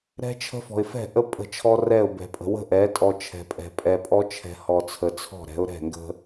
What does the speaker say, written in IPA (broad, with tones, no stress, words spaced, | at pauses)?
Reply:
ɾɛ̤˦t͡ʃʰə̤˦fɔ̤˨ɪ̯ fɛ̤˦˨ʔə˦ pʼə̤˦˨t͡ʃʰɔ˦ rɛ˦˨ʊ̯bɛ̤˨pʼə̤˨ wə̤˦ʔɛ˨˦tʼɔ˨ t͡ʃʰɛ̤˨pʼɛ̤˨ pʼɛ˨pʼɔ˦t͡ʃʰɛ̤˨ hɔ˨t͡sʰə˨t͡sʰɔ̤˦˨ɾɛ̤˨˦ʊ̯ ɾɛ̤˦˨ŋɡə̤˦